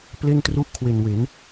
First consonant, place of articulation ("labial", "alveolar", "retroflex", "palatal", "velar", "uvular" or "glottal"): labial